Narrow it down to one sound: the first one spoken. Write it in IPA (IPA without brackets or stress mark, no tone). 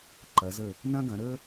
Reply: ǃ